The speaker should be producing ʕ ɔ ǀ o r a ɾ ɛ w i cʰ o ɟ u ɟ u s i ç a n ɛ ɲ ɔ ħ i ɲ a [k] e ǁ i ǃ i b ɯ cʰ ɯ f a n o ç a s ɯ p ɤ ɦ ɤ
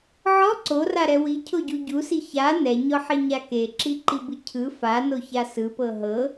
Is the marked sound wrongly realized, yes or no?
no